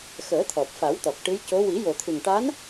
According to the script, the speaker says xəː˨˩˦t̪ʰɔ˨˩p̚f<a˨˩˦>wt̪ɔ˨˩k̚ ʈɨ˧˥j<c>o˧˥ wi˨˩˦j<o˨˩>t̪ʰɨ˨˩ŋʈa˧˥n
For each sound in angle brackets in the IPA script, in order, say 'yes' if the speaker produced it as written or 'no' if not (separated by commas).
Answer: yes, yes, yes